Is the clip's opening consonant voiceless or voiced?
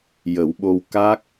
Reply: voiced